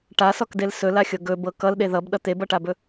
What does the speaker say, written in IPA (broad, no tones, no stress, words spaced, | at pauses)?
ʈasɔkdel sɵlaxʲɤ ɡɵbɤ kʌlɗe ðʌbɗʌ t̪ebʌʈabɵ